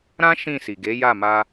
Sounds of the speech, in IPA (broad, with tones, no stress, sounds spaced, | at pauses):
ɾ ã˦ ʃ ĩ˦˨ s i˨ ɡ e˨˦ j a˦˨ m a˧